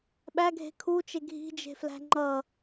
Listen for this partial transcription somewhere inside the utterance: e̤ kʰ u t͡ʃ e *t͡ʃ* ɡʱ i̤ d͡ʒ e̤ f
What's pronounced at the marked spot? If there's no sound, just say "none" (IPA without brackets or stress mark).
none